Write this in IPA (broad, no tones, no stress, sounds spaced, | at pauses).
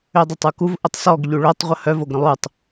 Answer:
ø dˤ œ tˤ u k u v ʔ ə tˤ s ɔ ɡ ʎ u ɭ o tˤ ʁʷ ə h œ v o ɡ ɾ ə̃ lˠ u tˤ